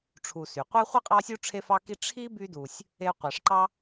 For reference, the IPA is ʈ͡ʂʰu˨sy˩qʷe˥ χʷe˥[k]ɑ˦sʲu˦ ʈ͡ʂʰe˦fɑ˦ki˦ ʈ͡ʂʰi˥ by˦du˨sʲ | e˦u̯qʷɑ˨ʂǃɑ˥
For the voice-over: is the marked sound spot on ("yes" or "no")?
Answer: no